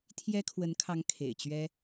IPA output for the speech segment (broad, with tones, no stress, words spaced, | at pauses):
t̪ʰjɛ˥kʰwə˧˥nkʰɑ˧˥ŋ kʰḛ˨˩ɪ̯t͡ɕɥɛ˥